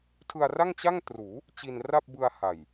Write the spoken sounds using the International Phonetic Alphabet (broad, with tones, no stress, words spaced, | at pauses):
tʰɯ˧a̯ra˥˩ŋt͡ɕa˥˩ŋtruː˩˦ | t͡ɕi˧nra˥˩p̚bɯ˧a̯ ha˨˩j